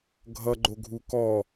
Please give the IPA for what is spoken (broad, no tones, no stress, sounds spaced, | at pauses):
ɡʱ ʌ ɡ͡ǃ o ɡʱ u k ɔ